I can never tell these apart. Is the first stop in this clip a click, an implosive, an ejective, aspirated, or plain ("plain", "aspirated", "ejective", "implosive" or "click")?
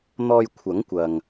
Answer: aspirated